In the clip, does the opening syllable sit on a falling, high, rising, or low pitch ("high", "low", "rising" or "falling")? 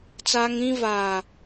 high